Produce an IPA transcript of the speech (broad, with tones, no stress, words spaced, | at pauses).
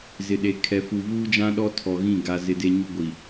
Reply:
zɪ˨ɗe˨ kʰɛ˨fu˨ vuː˦d͡ʒã˦ ɗɔ˦tʰɔ˨ɣĩ˦˨ ɡa˨ zɪ˨de˨ ɲu˦ ɡʷi˨